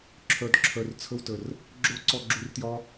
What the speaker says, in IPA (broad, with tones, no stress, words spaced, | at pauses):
ǁʰœ˨d ǁʰœ˨rt͡sʰə˧wtə˨r | ɡ͡ǁo˦ǀɔ˧ ɡ͡ǁu˧rtjɒ˦